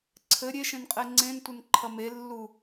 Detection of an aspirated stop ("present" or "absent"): present